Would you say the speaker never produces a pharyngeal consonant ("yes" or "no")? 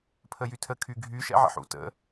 no